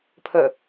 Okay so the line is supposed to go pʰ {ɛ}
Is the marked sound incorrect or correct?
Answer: incorrect